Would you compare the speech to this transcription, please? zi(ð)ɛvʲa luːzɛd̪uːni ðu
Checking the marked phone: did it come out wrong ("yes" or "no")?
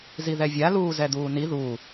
no